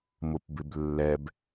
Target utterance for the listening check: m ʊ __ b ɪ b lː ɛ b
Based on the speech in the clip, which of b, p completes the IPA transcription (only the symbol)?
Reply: p